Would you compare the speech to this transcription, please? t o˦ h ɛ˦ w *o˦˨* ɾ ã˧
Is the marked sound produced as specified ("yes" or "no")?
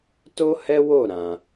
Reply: yes